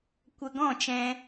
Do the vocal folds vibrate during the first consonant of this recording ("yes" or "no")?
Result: no